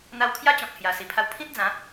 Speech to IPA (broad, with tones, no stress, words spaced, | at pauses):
n̪a˧wkʰja˦t͡ɕɔ̃˨k̚ hja˨˩ si˨˩pʰa˧w pʰĩ˦t̚d͡zã˨˦